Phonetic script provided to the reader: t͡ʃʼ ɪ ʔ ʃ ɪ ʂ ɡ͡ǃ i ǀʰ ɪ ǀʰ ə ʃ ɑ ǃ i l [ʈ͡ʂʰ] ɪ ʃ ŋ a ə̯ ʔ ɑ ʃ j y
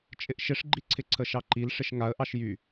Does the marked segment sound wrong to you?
yes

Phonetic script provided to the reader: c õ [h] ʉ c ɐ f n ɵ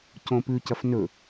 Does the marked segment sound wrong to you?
yes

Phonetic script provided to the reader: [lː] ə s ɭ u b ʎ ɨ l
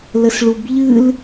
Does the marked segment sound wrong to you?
yes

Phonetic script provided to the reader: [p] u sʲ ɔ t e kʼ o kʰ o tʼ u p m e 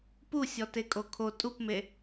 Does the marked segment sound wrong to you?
no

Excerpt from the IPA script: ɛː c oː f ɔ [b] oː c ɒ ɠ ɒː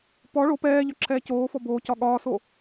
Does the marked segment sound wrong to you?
no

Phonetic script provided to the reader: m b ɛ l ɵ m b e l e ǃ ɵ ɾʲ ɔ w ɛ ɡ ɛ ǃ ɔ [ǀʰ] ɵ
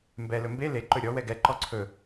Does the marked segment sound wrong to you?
no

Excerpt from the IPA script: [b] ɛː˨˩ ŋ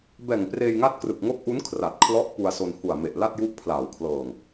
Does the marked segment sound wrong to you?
no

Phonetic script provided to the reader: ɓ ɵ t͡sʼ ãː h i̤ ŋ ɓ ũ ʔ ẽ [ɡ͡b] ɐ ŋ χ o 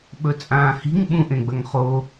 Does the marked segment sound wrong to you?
no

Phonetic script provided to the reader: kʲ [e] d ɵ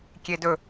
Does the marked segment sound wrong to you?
no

